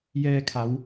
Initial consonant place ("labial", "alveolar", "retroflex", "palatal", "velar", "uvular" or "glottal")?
palatal